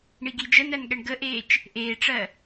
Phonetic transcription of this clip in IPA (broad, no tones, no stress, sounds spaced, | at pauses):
ɳ i ɡ i d͡ʒ ə n æ n ɠ ɛ ɳ ɡ ə ʔ eː t͡ʃ | ʔ eː ʈ͡ʂ ɜ